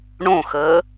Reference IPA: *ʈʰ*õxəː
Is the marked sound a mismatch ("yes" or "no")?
yes